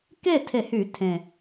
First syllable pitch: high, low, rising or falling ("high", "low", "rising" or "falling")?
falling